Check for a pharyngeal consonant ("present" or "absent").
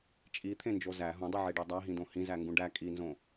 present